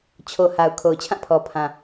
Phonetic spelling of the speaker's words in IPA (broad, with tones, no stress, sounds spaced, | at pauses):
t͡ɕʰ o˨ h a˨ ʊ̯ kʰ o˨ ʊ̯ t͡ɕʰ ã˦˨ pʰ ɔ˨ pʰ ã˨